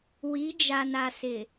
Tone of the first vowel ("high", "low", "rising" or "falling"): rising